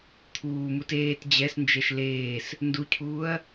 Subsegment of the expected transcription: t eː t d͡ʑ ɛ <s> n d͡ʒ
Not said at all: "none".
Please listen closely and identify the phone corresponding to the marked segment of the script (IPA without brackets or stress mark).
s